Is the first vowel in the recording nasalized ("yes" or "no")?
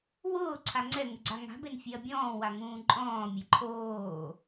no